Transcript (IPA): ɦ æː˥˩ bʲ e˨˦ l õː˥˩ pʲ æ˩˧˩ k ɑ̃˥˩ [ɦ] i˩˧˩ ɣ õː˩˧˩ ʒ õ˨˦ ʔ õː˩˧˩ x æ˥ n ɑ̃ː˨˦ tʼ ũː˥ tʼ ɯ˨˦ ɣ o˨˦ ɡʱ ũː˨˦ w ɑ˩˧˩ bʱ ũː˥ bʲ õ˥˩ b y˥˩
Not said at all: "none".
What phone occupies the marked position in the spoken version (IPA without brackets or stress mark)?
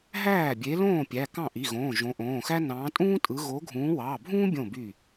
ʔ